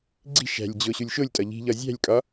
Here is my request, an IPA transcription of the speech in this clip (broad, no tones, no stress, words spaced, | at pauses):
ɡ͡ǀi̤ ʃæ̤lʲd͡ʑo ɕulʲʃolʲtʼɒ ʎi̤ʎɒ zʲæ̤lʲkʼɒ